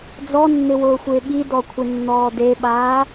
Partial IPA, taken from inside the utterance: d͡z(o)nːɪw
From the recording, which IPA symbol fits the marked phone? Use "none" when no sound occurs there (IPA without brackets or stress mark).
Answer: ɔ